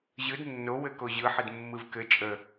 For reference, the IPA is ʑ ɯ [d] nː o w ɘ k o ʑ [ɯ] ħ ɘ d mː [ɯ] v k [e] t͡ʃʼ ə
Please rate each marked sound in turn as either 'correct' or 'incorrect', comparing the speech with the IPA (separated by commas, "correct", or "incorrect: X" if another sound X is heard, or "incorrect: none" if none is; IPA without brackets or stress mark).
correct, correct, correct, incorrect: ɘ